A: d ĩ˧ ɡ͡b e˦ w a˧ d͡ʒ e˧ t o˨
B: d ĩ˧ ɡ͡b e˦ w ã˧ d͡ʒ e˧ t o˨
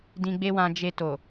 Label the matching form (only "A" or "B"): B